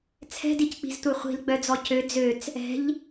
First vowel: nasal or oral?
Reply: oral